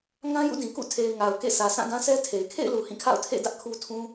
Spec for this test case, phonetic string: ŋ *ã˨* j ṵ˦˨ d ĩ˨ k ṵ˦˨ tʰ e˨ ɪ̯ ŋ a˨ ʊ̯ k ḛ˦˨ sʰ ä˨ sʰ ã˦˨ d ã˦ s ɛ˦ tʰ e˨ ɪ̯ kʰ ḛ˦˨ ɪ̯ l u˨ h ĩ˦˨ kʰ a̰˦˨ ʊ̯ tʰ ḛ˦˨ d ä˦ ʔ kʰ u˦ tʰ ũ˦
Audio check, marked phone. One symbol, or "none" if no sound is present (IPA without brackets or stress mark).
ã˦